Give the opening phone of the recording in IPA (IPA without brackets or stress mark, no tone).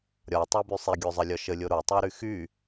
ɾʲ